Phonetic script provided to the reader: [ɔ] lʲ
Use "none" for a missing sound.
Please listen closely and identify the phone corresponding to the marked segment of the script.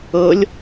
ɤ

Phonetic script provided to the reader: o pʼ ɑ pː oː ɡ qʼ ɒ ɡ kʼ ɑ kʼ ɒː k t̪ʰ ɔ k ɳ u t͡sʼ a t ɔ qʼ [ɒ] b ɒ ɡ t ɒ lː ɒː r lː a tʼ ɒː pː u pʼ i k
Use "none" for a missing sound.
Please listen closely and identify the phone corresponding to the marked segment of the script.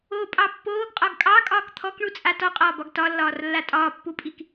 ɒː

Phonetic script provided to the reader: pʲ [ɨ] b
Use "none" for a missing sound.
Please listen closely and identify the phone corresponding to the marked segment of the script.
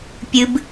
ɨ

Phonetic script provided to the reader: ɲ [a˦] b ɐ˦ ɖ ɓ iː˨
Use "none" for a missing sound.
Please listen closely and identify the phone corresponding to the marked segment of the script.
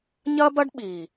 ɐ˦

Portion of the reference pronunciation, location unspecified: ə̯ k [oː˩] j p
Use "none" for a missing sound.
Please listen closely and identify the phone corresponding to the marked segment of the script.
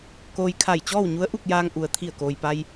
oː˩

